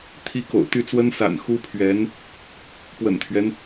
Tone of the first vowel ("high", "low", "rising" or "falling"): high